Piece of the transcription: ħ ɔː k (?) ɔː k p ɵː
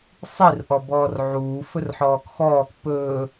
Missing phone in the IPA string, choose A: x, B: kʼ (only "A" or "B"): A